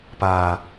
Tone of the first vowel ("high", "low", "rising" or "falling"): low